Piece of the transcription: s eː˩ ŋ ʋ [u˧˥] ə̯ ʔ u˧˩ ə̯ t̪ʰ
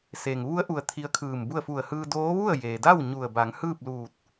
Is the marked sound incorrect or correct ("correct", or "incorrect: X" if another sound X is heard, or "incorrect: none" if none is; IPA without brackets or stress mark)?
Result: correct